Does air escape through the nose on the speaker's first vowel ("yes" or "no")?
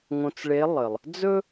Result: yes